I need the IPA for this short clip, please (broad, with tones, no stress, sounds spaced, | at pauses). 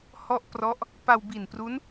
h ɔ˥˩ ʔ p r ɔ˦˥ ʔ | p a˧ w b i˨˩ n p r u˦˥ n